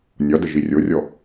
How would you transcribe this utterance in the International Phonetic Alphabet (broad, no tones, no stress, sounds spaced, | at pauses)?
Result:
nʲ ɒ d ə ʒ i rʲ o rʲ ɔ